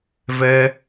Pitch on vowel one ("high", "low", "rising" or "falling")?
high